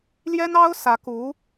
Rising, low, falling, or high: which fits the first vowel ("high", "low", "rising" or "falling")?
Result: high